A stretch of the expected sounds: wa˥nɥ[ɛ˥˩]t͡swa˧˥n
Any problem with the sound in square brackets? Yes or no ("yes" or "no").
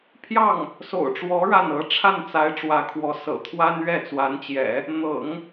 no